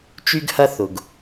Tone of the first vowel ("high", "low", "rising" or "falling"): high